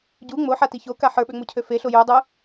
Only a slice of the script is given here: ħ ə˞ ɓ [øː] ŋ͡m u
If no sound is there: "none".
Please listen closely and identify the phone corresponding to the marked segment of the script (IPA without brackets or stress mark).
ø